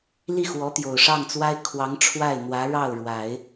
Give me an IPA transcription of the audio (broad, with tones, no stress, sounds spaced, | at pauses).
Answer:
l i˥˩ x w ɔ˧˥ t̪ j o˨˩ ʊ̯ ʂ ɑ˥˩ ŋ t͡s w a˥ ɪ̯ kʰ w ɑ˧˥ ŋ ʈ͡ʂʰ w a˥˩ ɪ̯ n̪ w ä˧˥ ɻ ɑ˥˩ ʊ̯ ɻ w a˨˩˦ ɪ̯